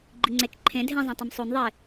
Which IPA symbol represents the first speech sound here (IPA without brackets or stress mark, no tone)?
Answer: ɡ͡ǃ